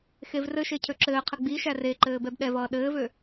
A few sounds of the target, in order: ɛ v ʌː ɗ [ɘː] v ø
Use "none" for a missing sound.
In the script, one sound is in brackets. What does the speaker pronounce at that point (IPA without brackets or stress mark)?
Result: ɘː